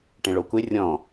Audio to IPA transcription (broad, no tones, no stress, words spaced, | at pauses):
ʈẽɭokʷe rʲɔ̃